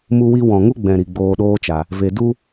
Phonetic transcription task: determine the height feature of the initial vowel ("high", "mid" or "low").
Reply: high